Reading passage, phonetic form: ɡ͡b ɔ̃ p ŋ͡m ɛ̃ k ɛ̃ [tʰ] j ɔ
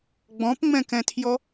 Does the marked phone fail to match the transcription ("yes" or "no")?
no